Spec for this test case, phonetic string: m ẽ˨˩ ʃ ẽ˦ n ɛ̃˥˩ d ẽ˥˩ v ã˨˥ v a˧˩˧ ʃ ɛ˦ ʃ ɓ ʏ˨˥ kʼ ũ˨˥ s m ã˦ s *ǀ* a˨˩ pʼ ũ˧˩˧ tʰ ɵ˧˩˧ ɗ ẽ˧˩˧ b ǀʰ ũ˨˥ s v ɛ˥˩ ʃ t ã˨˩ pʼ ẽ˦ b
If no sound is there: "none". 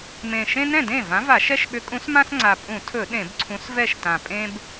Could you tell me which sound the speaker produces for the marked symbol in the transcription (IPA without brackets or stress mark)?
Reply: ŋ͡ǀ